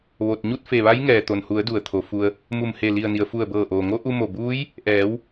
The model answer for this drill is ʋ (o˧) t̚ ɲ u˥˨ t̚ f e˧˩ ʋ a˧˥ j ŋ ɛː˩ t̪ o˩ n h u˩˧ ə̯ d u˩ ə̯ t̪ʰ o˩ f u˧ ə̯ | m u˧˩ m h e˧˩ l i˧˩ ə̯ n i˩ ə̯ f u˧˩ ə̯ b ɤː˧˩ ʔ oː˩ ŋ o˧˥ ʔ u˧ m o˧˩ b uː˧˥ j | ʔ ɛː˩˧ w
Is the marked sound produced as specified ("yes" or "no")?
yes